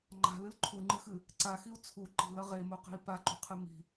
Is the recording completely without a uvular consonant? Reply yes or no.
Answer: no